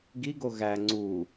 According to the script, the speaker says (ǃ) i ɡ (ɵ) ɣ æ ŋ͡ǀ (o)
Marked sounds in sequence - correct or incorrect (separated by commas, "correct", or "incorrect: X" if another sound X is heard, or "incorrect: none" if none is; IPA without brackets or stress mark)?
incorrect: ɡ, incorrect: o, incorrect: u